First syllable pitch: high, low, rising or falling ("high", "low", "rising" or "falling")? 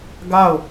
falling